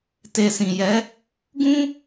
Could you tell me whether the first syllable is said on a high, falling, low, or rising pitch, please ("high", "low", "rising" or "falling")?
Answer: low